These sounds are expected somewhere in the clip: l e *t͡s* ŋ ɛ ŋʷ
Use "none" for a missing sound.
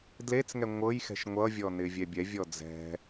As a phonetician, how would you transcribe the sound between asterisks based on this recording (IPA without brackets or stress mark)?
t͡s